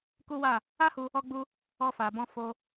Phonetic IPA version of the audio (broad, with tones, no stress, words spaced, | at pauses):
ku˦wa˦˨ | a˦hu˧ | ɔ˦ɡ͡bu˦ | ɔ˧fa˨bɔ̃˧ fo˧